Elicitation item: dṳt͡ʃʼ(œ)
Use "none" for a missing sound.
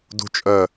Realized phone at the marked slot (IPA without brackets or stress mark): œ